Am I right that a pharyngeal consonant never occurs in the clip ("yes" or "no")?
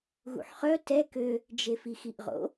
no